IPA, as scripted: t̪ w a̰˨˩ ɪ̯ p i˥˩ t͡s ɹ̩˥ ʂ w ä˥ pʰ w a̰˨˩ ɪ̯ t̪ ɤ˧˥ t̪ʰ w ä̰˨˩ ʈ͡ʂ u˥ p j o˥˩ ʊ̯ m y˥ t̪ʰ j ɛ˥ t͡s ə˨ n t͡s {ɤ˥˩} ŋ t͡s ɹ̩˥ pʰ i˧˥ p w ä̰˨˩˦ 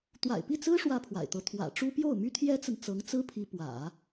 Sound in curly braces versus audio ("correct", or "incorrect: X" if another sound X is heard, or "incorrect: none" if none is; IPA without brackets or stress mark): incorrect: ɤ˧˥